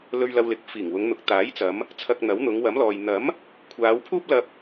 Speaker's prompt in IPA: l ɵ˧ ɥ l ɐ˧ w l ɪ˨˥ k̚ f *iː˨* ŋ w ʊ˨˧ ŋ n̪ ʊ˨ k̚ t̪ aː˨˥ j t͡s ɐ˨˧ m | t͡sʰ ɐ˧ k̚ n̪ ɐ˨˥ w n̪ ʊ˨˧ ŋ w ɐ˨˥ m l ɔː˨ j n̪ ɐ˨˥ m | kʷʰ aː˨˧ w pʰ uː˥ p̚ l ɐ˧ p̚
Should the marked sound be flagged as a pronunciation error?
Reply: yes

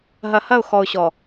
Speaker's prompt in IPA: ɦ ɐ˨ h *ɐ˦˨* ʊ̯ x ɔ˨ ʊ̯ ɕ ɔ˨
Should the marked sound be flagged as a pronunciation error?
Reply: no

